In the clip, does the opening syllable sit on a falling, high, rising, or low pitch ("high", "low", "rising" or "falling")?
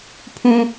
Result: high